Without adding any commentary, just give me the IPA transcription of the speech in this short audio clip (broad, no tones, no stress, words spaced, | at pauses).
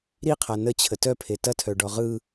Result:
ɾiqʰa nət͡ɕʰə tœpʰe tɐtʰœɖɔ ʁɯ